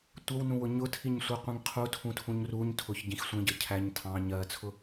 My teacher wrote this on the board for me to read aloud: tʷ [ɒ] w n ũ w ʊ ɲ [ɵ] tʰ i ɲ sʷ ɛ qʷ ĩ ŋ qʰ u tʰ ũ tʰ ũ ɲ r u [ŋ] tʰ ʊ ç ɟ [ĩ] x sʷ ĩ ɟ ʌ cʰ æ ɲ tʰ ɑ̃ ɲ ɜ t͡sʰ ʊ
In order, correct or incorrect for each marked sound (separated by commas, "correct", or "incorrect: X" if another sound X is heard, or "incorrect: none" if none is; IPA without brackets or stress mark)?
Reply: incorrect: ʌ, incorrect: ʊ, incorrect: ɲ, correct